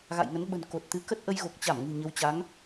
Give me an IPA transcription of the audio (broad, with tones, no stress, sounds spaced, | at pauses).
ɣ a̰˧˨ j ŋ ə˨˦ n ɓ ə̤˨˩ n k o˨˩ t̚ t̪ ɨ˨˦ k ə˦˥ t̚ ʔ ə˧ j ɣ o˨˩ k̚ t͡ɕ a˧˩ m ŋ ɨ̤˨˩ ɲ ə˨˦ w t͡ɕ a˨˦ ŋ